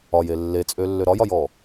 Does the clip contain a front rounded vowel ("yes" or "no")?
yes